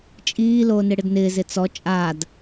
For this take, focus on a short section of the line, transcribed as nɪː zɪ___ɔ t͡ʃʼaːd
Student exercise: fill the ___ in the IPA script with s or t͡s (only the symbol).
t͡s